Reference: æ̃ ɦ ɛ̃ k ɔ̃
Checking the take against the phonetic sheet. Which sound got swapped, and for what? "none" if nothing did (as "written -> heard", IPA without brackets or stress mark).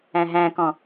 ɛ̃ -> æ̃